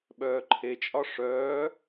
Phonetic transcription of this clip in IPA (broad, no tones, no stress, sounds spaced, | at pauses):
ɓ œː ǃʰ e t͡ʃʼ ɒ ʂ œː